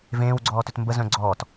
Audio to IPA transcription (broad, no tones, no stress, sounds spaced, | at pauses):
v ẽː w ɡ͡ǀ ɔː t ʏ t m b ə z œ̃ ɡ͡ǀ ɔː t